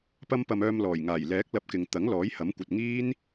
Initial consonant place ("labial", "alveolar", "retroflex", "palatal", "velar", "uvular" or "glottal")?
labial